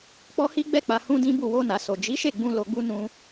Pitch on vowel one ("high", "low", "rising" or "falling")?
high